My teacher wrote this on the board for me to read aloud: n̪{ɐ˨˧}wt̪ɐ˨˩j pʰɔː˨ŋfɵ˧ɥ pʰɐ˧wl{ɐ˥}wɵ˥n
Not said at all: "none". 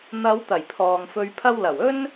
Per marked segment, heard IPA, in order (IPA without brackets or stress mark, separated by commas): ɐ˨˧, ɐ˨˩